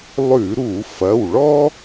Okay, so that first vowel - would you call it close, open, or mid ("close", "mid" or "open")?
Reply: close